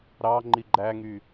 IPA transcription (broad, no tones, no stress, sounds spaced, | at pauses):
ɾ ɑ ŋ͡ǃ i ɡ͡ǃ æ ŋ y